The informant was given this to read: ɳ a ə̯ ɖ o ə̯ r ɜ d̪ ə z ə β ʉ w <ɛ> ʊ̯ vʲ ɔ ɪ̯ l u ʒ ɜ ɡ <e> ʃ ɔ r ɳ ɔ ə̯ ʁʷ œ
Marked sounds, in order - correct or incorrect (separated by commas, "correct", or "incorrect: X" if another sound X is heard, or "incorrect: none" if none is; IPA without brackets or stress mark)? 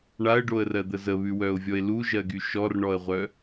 incorrect: œ, incorrect: y